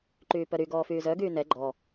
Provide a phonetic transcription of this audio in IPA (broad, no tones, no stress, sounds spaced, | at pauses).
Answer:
ǃ yː p œ ɾ y ɡ ɔː f yː z œ ɡ yː n ɛ ɡ͡ǃ ɔ